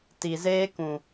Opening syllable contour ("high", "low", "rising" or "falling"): low